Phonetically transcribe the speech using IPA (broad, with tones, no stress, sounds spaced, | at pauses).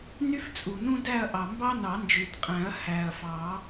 n y˥ f t͡sʼ u˩ n ũ˥ d æ˥˨ ɐ̯ ʔ ɑ˩ m b ɑ˥ n ɑ˨˩˦ n d͡ʒ ʉ˩ t qʼ æ̃˨˩˦ ɐ̯ h æ˩ ɐ̯ f ɑ˨˩˦